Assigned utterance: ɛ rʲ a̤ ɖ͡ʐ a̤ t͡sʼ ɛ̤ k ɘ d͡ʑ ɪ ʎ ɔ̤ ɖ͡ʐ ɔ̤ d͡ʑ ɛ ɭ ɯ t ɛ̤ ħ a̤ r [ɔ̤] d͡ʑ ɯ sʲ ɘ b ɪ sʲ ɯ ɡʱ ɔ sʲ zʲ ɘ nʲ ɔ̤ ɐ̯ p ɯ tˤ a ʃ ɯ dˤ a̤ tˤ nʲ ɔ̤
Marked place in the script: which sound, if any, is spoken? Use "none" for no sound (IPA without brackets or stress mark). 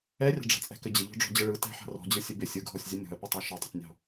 ɔ̤